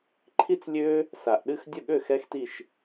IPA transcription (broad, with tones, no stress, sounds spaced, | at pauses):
ǃʰ i˥ t͡s lʲ ø˥ | s a˨ ʔ ɗ ɨ˥˧ x dʲ ə˥˩ ɠ ø˥˩ x ɛ˥ x t i˥˧ ʃ